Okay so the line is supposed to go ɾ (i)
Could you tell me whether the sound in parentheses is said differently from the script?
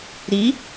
no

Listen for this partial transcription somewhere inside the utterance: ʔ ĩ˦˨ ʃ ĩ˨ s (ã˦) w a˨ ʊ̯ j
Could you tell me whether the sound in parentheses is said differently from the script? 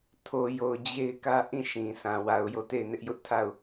yes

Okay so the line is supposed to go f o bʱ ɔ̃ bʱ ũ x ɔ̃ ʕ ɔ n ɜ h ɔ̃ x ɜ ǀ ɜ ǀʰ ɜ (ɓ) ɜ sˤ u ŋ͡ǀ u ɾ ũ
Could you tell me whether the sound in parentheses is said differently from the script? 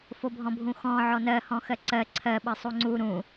no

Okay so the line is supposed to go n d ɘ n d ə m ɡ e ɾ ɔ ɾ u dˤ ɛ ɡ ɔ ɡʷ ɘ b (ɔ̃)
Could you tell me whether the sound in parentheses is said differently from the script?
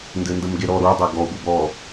yes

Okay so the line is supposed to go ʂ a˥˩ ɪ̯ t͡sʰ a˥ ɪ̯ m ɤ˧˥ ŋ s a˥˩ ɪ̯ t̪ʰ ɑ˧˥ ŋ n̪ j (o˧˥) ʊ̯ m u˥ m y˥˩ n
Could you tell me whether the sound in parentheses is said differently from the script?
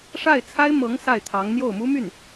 yes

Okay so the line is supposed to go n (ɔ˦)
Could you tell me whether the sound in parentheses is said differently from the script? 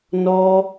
no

